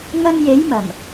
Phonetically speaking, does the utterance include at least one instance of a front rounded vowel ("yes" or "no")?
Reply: no